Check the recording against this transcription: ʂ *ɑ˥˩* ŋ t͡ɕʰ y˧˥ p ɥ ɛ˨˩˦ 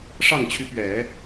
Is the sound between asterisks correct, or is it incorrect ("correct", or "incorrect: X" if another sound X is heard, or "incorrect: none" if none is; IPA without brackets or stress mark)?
correct